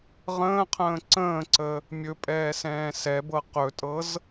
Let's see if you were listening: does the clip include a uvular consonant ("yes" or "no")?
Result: yes